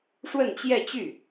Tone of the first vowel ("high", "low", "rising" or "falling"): falling